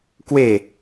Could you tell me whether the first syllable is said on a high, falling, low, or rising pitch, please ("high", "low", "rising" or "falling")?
falling